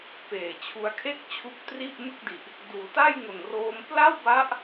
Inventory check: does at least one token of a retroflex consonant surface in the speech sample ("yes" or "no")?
no